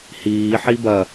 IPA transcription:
hiːħi bɐ

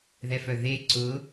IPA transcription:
ðɛfœðe ǀʊ

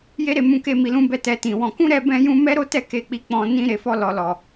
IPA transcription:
je˦ɾe˦˨ mũ˧ke˧ mi˨lũ˧bɛ˧ tɛ˧tĩ˨wɔ̃˧ kũ˦ ɾɛ˦bɛ̃˦jũ˦ mɛ˦ɾo˦tɛ˦˨ ke˧k͡pi˧ k͡pɔ̃˧ nĩ˧ ɾe˧fɔ˦ lɔ˧lɔ˨

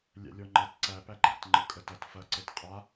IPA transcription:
lʲæ̰lʲɔŋ͡ǃɐt ǀæ pæɡ͡ǃæ̰t ŋ͡ǃɤkʼətɐt fɐ ǀɤtqʼa

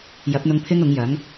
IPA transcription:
jɐ˨˥p̚n̪ʊ˧ŋ pʰɪ˥ŋʊ˨˥ŋjɐ˨˥ŋ

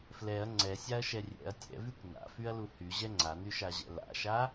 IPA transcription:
flɛɐ̯ ŋ͡ǀɛsʲaɐ̯ʃɛ rʲɛ̰ɐ̯ tʲɛ̰vykʷ na̰fyɐ̯lu hyʑɛ ŋ͡ǀanyʃaʑɛ̰ la̰ʃa

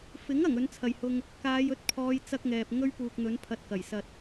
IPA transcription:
fɪ˨˥ŋ ɐ˨˩ŋɵ˨˥nt͡sʰɐ˨jhʊ˧ŋ | kaː˨˧j ɵ˨˥t̚ pʰɔː˨˧j t͡sɐ˥k̚ŋɛː˨p̚ ŋɵ˥ɥpuː˨k̚n̪ɵ˨˥n pʰɐ˧t̚kɐ˨˩jsɐ˧t̚

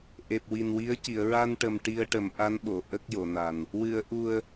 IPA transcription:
ʔe˨˩p̚wi˨˩nwi˧˥ə̯ ci˨˩˨ə̯ɹa˧nʈə˨˩m ʈi˧ə̯ʈə˨˩˦m ʔa˧˥nɓo˨˩˨ ʔə˦˥k̚jo˨˩˨na˨˩n | wɨ˨˩˨ə̯ʔu˨˩ə̯

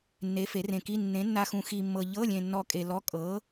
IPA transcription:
nːe˨˥ fe˨˥rẽ˧ki˧˥˧ nːẽ˨˥nːa˧xũ˧ xi˧mːɤ˧ ʎɤ˧˥˧lʲẽ˧nːɔ˧ kʼe˧lɔ˧˥˧ kʼɤ˨˥

